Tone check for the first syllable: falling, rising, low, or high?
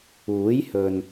rising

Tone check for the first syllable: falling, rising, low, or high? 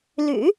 low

